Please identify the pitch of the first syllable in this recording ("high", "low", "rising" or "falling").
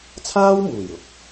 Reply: high